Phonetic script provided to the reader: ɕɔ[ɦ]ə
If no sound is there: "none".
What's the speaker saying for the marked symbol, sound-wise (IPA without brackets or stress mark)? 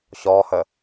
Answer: h